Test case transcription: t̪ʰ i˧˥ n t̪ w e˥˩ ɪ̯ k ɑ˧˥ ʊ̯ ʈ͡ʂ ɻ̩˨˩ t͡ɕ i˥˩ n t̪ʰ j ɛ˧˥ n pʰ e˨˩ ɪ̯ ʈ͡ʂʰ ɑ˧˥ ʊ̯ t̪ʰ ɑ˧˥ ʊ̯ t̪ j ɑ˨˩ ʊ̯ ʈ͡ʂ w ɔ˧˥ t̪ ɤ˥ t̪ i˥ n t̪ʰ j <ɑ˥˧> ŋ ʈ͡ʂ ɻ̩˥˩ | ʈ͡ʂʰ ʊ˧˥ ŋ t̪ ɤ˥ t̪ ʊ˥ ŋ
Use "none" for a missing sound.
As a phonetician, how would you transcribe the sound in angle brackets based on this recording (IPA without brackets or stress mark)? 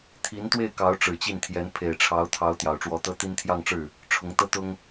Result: ɑ˥˧